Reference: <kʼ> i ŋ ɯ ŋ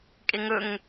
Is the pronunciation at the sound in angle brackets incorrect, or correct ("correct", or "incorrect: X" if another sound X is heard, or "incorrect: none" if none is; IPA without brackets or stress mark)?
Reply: correct